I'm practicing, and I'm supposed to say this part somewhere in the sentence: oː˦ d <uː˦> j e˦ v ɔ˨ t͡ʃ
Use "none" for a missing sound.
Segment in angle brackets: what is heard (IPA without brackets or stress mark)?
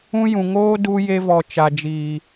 uː˦